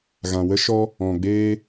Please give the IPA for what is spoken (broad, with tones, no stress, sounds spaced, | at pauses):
ɣ ã˧ w ə˦ ʃ ɔ˦ | ɔ̃˧ ɡ͡b eː˦